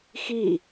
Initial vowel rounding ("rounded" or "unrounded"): unrounded